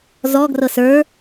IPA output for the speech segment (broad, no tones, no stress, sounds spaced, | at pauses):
z ɔ ɡ r ɤ s ə˞